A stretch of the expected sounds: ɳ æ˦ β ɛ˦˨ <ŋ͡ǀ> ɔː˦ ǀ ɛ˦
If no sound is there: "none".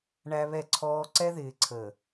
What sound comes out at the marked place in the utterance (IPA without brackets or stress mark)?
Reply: ǀʰ